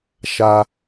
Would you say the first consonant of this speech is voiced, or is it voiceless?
voiceless